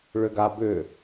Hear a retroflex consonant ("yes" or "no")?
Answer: yes